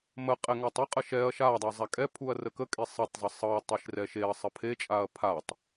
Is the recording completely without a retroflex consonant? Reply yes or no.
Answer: yes